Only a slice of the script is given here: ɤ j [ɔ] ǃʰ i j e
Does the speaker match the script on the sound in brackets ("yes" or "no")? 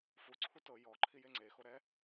yes